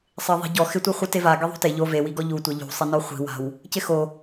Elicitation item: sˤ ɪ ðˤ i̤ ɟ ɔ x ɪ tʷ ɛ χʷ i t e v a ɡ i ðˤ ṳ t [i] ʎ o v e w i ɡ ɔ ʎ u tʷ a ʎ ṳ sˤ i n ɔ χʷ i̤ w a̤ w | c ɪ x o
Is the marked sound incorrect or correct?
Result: incorrect